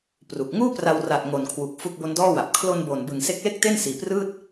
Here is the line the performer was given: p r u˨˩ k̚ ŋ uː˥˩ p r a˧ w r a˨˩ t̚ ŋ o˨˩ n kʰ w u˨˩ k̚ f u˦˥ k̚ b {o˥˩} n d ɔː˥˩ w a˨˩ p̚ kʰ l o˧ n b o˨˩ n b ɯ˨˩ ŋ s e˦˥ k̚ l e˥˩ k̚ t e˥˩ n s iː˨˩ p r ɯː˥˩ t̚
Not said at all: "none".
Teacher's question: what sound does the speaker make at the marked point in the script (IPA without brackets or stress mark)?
o˦˥